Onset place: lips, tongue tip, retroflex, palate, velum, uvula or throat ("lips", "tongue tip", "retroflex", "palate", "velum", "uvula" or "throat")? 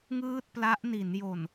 velum